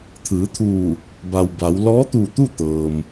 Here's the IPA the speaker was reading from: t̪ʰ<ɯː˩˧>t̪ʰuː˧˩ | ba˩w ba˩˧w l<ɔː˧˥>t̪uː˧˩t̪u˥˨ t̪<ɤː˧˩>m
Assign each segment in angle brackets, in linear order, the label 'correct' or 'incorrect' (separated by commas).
correct, correct, incorrect